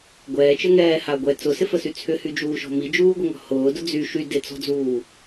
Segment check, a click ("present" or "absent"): absent